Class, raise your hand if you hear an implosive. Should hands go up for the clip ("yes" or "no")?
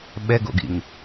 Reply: yes